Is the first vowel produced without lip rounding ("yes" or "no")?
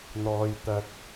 no